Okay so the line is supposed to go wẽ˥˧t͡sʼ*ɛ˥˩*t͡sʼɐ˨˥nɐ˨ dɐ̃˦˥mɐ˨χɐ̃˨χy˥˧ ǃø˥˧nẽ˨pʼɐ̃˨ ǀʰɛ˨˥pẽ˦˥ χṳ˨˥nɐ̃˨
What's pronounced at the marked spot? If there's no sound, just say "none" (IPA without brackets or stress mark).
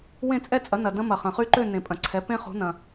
ɛ˥˧